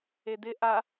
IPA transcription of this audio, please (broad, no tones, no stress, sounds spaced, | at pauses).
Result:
e d̪ ɪ ʔ a